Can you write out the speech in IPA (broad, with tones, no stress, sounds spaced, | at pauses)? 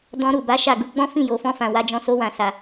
d ɔ̃˧ ɾ u˨ b a˨˦ ʃ a˦˨ ɡ u˧ ɡ͡b ɔ̃˦ f ĩ˦˨ j o˨ f ɔ̃˧ f ã˨ w a˨˦ d͡ʒ ɔ̃˧ s o˧ w ã˨ s a˨